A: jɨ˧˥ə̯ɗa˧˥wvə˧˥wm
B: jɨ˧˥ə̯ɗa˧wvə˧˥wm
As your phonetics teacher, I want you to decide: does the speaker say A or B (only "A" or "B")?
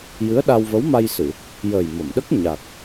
B